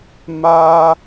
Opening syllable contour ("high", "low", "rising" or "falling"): high